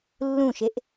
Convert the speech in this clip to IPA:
lː ũ ʃ e ʔ

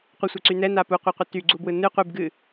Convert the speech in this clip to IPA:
qʷ ɯ sʷ ɛ ǀ y n ɛ n a p u qʷ a qʷ ɯ t y ɡ͡ǀ u b w ɯ n ɨ qʷ ɨ b ɡ ɨ

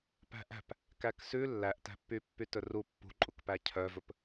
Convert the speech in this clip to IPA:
p æ̤ ʔ æ̤ p | k æ k s ʉ lː æ ʔ t æ̤ pː y pː y t ɵ r u pː ṳ ǃʼ u k p æ cʰ œ v ɵ p

